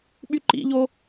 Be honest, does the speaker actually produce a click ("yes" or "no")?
yes